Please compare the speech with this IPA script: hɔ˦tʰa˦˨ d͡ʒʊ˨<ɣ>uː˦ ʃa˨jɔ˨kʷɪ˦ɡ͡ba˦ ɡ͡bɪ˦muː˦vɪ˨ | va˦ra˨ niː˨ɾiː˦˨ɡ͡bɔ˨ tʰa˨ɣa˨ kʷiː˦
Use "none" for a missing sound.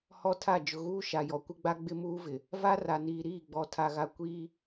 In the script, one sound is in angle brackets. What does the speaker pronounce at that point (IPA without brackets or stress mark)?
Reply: ɣ